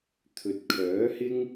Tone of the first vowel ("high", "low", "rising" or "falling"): low